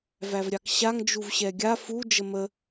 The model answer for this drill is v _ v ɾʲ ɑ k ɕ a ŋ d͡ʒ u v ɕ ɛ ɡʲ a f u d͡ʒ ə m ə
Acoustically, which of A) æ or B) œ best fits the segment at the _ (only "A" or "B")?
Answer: A